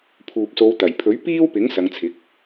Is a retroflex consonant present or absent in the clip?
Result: absent